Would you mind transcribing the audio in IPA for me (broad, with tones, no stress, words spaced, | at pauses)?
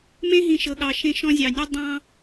mẽ˦ɦĩ˨ʃɤ˨ ɠɑ˨ʃẽ˦˨ʃɔ̃˦ zʲɑ˨ nʲɔ˦ dˤɑ̃˦